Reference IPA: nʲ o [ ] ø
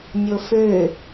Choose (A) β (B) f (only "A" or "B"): B